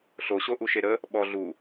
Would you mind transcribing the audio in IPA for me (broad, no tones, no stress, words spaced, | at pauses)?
ɬoɕo ʔuʃeɾə | ɓɔ ɮu